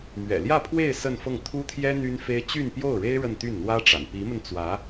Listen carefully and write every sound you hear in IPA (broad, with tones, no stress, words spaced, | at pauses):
mɥɛ̰˨˩ljä˥˧pʰwe˥˧ɪ̯ sə˥˧nfɤ˥˩ŋ t̪ʰu˥t̪ʰjɛ˥ n̪y˥nfe˥ɪ̯ t͡ɕy˥˧npjo˥˩ʊ̯ɻe˥ɪ̯ ɻə˥˧nt̪y˥˩nn̪wä˥ʈ͡ʂa̰˨˩n pi˧˥mə˧nt͡swä˧˥